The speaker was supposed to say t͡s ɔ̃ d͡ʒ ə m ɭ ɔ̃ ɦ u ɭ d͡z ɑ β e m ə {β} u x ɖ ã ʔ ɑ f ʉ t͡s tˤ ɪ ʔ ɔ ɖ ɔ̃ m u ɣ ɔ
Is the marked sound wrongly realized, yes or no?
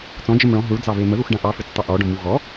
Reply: yes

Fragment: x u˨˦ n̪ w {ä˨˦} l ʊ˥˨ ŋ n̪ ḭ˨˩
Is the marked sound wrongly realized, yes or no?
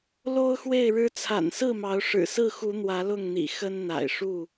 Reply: no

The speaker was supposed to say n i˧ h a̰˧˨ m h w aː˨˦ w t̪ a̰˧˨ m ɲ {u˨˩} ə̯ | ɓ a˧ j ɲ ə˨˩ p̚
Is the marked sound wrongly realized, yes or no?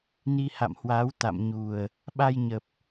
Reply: no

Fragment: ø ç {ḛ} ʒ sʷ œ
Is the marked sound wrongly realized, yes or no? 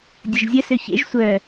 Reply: no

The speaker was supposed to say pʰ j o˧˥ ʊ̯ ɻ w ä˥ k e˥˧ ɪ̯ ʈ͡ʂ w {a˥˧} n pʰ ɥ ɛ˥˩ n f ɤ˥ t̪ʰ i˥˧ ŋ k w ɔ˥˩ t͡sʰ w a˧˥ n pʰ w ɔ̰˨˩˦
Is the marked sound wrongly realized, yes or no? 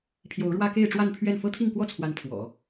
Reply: no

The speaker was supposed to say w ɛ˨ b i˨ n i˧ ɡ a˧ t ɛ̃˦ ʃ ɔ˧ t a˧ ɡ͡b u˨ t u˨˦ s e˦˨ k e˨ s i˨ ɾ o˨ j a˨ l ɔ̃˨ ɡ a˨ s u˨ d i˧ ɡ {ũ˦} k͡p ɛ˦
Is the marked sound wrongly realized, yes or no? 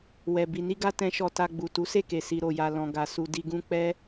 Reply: no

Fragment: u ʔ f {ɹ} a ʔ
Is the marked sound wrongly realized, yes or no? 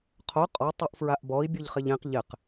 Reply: no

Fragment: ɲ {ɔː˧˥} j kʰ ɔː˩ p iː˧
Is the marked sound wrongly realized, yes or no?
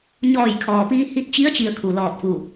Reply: yes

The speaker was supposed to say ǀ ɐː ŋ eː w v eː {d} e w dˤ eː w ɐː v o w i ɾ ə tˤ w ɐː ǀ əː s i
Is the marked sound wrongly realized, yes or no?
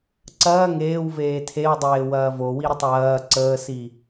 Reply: yes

